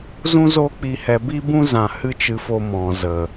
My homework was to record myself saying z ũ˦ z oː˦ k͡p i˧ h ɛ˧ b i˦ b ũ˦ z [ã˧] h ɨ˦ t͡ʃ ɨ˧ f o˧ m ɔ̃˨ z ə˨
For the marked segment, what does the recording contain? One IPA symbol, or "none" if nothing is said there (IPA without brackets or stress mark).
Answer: ã˧